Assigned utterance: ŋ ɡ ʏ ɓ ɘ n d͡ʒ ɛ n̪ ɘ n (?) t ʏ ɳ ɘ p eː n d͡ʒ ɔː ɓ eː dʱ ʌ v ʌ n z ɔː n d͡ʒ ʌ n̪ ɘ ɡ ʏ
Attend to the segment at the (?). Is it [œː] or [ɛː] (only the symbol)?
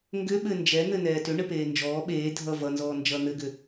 ɛː